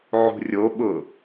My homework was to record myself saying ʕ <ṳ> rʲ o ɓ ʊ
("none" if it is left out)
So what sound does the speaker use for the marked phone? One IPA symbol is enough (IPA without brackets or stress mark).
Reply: ṳ